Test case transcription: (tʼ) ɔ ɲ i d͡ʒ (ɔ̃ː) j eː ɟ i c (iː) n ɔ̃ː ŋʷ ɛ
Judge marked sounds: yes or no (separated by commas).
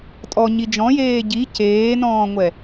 yes, no, no